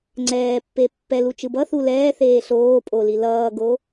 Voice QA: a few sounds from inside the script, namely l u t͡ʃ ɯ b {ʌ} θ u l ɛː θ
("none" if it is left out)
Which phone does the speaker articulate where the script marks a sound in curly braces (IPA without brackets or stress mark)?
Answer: ʌ